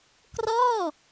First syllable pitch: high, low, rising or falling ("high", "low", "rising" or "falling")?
falling